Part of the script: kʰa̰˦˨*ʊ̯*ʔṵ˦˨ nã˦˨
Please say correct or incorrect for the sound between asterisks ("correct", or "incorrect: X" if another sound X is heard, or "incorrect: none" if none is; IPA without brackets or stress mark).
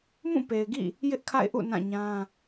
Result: incorrect: ɪ̯